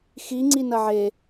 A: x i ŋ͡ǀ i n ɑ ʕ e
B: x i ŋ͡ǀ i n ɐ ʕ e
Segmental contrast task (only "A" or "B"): B